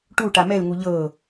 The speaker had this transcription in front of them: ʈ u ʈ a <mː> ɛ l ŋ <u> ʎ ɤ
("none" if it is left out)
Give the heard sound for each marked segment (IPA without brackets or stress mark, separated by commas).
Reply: m, u